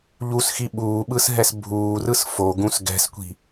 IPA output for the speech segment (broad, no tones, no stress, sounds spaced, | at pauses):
ʎ u s x i ɓ uː ɓ ɯ s ɦ ɛ s bʱ uː r ɯ s f o ɡ ũ s ɡ ɛ̤ s kʷ i̤